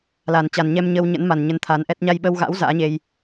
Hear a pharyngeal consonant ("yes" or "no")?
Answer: no